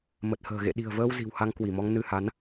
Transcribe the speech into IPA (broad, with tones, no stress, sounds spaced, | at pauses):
m ə˨˩ t̚ h ə̤ː˨˩ ɣ ḛ˧˨ ɗ i̤˨˩ ə̯ v əː˧ w z i̤˨˩ w h a˧ ŋ k w i˧˩ m ɔ˧ ŋ n ɨ˧ h a˨˦ n